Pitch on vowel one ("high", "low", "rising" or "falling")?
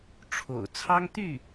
low